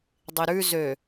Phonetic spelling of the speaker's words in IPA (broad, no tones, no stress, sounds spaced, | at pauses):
dˤ i ɾ ʉ z ø